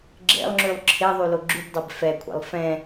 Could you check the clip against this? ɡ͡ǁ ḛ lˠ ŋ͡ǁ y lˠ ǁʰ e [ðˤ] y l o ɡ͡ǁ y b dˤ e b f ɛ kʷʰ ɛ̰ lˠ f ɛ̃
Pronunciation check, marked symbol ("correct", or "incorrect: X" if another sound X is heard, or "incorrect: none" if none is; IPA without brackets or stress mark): correct